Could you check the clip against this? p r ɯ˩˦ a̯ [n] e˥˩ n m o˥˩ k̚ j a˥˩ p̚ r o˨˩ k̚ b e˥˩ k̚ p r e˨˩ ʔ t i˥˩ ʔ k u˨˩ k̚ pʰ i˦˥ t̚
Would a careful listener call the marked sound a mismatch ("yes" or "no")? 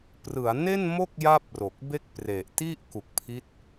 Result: no